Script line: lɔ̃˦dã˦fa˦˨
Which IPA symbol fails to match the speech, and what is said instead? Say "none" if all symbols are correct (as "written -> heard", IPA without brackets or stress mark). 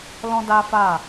ã˦ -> a˦